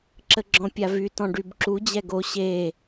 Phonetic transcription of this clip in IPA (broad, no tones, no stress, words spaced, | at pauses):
ǁəɡ͡ǁɔ̃pʲavy tɔ̃ɖybǁu d͡ʑɛɡo ɕe